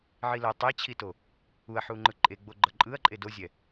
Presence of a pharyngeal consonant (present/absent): present